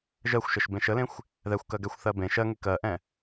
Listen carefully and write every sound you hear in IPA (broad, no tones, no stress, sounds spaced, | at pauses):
ʒ ɜ xʷ ʃ ə ʃ b ẽ ʃ ə l ẽ xʷ | ð ɛ xʷ k ɜ ɡ ɛ xʷ θ ɜ b ẽ ʃ ɜ ŋ e k ɜ ʔ ɛ̃